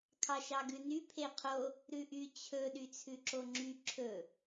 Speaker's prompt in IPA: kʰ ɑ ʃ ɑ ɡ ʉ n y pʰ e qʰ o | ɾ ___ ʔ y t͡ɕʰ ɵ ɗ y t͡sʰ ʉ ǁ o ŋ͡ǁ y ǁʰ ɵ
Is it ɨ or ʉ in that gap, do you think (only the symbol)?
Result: ʉ